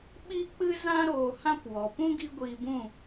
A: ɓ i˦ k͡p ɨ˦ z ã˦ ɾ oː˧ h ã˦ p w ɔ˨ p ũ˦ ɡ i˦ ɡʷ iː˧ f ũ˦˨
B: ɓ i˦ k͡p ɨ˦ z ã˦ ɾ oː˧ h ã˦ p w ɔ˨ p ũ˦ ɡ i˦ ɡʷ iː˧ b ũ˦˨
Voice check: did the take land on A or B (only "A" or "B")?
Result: B